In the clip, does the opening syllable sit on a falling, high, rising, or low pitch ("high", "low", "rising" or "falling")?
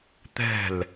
falling